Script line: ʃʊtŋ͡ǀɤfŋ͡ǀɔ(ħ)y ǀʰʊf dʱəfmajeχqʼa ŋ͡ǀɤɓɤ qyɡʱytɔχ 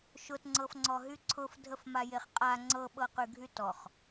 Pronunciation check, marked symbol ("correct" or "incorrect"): incorrect